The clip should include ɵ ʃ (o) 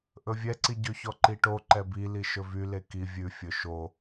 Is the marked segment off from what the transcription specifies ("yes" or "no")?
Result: no